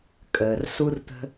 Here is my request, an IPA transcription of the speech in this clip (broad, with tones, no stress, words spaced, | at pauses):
kʼəː˩r su˦rt̪ə̤˦